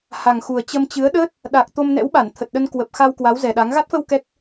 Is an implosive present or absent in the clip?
present